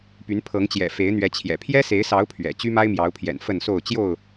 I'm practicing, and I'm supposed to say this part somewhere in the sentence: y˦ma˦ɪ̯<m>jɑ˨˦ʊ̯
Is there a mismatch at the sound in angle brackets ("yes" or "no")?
no